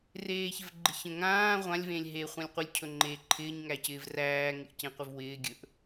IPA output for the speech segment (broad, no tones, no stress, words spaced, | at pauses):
reːçɪvɡ͡ǃɪçə̃ ŋãː ʁʷãlʲvẽlʲ ɦe χʷãlʲqʷɪlʲcʰɵ ŋ͡ǃeːǃʰɪːɲŋæcɪːv ræːŋɪʔ cẽqʷɪvwɪː ɡʲɵʔ